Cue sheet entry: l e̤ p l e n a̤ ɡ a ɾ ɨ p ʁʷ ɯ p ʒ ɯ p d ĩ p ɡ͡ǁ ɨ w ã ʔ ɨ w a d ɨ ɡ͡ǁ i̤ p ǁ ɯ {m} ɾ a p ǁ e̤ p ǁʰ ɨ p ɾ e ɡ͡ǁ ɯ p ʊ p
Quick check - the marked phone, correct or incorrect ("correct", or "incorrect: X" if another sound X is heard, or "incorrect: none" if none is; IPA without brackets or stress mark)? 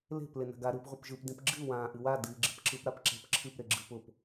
incorrect: p